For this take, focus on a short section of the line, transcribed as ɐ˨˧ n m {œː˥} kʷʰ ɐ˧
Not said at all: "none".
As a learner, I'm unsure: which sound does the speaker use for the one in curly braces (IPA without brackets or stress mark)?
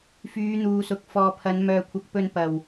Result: œː˧